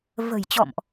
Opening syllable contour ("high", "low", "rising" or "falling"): low